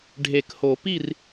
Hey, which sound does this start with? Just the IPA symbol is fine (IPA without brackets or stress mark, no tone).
ɖʱ